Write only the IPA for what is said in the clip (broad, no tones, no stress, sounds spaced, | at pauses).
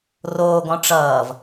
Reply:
r oː ɡ ɔ̃ ʈ͡ʂ ʌː v